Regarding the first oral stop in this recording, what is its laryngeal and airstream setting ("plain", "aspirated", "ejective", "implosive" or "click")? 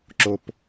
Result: click